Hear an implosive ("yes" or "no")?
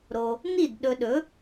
yes